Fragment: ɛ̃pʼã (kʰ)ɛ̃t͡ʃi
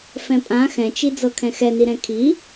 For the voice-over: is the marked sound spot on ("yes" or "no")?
no